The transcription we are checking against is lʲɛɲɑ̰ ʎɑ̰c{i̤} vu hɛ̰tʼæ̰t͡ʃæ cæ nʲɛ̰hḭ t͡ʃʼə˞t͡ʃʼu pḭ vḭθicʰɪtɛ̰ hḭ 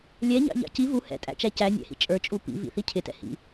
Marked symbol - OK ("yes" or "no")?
no